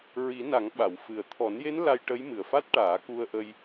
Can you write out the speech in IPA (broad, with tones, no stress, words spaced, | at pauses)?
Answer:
ɹi˨˩˦na˨˩˦ŋɓa˨˩˨w fɨ˨˩ə̯ t̪ʰɔ˨˩˦nje˧˥n la˧jʈə˧˥j mɨ˨˩ə̯fa˦˥t̚ʈaː˨˩˦ ku˧ə̯ʔə˧j